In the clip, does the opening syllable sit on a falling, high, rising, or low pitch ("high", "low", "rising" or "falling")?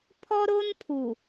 high